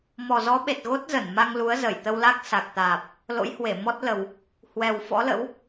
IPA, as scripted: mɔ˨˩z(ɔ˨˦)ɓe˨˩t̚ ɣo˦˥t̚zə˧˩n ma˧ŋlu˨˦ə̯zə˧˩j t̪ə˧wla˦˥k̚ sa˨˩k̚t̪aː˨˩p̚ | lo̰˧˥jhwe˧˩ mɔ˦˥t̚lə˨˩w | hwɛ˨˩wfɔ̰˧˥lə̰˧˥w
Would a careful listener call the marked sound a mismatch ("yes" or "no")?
no